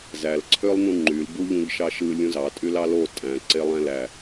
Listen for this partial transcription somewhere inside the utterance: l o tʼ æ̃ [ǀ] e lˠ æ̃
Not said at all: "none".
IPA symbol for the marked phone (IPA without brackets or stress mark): ǀ